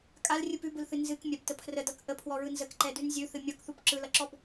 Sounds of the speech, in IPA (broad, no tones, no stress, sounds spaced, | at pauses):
kʼ a l rʲ ɯ p ʉ b ɯ l θ ɨ n z ɨ k mʲ a b t ə pʰ r ə d ʌ k ʔ ə pʰ w ɔ ɹ ɯ n z ə k ǃ ɛ d ʉ n zʲ ʉ θ ɨ mʲ ʌ k θ u p ǁ ɯ l ʌ ǁ ɔ b